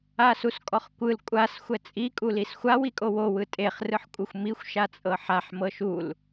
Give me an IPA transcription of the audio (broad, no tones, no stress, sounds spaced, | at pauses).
a s u s kʼ ɔ χ kʷ ɯ l kʷʼ a s xʷ ɛ t͡sʼ i kʼ u l i s xʷ a w i kʼ o w o w ɯ tʼ e χ r ɯ ħ kʷʼ ɯ xʷ m i xʷ ʃ a t͡sʼ ɤ ħ a ħ m ɤ ʃ u l